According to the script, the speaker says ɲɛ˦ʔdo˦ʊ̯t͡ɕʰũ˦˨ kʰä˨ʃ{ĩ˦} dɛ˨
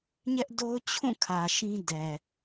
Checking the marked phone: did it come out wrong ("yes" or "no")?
no